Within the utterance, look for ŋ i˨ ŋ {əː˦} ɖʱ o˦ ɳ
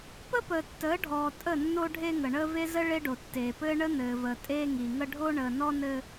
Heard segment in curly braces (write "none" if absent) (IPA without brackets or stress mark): ə˦